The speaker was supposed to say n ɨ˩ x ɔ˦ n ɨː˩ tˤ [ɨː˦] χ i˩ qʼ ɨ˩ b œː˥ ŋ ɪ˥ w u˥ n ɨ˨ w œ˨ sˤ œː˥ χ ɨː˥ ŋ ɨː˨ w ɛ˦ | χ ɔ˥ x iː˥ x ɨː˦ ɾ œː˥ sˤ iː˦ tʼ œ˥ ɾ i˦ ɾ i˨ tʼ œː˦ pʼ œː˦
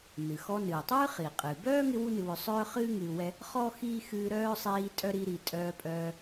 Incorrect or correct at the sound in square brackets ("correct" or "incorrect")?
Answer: incorrect